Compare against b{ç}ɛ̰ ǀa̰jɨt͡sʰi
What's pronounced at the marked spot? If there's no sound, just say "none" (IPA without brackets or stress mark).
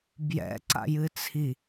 j